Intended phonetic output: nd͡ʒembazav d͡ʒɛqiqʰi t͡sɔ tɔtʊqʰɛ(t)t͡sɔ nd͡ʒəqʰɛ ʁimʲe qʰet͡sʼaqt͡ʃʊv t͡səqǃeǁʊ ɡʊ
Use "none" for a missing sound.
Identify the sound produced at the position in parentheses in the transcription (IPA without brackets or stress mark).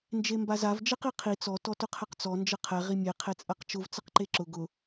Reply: q